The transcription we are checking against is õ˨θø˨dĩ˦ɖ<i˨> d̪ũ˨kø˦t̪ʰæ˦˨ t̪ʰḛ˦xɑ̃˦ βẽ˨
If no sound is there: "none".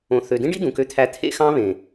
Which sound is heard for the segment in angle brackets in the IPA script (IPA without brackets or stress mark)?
i˦